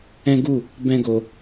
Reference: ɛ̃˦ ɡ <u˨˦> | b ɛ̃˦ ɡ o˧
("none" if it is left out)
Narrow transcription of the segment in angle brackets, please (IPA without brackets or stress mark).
u˦˨